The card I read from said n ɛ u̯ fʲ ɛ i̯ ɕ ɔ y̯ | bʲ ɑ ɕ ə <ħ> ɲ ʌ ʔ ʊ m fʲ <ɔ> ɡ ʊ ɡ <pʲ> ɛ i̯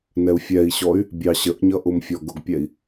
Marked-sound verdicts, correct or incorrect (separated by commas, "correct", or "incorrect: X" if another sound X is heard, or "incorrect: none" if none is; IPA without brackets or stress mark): incorrect: ʔ, correct, correct